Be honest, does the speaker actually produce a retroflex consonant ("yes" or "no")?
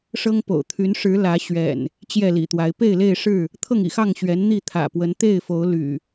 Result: yes